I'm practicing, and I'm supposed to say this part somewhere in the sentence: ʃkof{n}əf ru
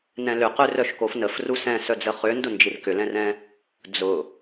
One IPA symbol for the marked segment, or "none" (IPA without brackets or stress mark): n